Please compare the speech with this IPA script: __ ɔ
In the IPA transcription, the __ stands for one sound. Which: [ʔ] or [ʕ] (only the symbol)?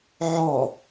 ʕ